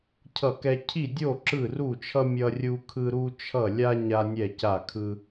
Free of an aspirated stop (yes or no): no